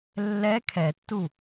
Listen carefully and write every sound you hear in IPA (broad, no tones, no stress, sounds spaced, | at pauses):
lː ɛ kʰ ɛ tː u